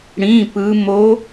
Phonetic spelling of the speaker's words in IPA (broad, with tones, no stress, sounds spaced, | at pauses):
ɽ ĩ˧˥˧ p ɯ˦˥ m o˦˥